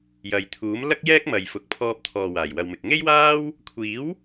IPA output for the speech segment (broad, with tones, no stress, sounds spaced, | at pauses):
j ɐ˨ j t̪ʰ uː˨˥ m l ɐ˥ k̚ j ɛː˥ k̚ m ɐ˨ j f ʊ˨ k̚ pʰ ɔː˧ p̚ t̪ʰ ɔː˨ w aː˨˩ j w ɐ˨ w m ɪ˨ k̚ ŋ e˥ j w aː˥ w | kʷʰ iː˨˥ w